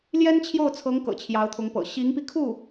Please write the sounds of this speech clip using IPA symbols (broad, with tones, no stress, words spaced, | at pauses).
ljɛ˥nt͡ɕʰjo˥˩ʊ̯t͡sʰɤ˧˥ŋ kɤ̰˨˩t͡ɕʰjɑ˧˥ʊ̯t̪ʰʊ˧˥ŋpɤ̰˨˩ ɕi˧˥ŋpi˧kʰu˥˩